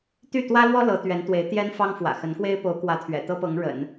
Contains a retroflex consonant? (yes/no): yes